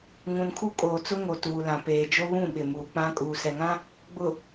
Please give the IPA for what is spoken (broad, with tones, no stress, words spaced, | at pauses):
ŋũ˨nkʰu˦kʼoː˨t͡sʊ˦ ŋo˨ tuː˨lã˨ peː˨d͡ʒo˦βũ˦˨ ɓɪ˨muː˨k͡pã˦ kʼuː˨sɛ˨ŋã˦ | ɡ͡bʊ˨